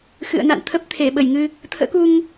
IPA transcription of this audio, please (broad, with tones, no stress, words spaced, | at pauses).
xɨ̰˧˨ə̯na̰˧˨nt̪ʰə˦˥p̚ t̪ʰe˧˩ɓə˧˩jŋɨ˧ | t̪ʰə̰ː˧˥ku˧ŋ